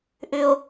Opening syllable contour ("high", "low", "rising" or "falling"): low